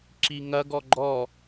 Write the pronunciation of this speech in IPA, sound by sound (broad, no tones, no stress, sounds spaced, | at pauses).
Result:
ǁ i ŋ ɐ ɡ ɔ ɡ͡ǃ ɔ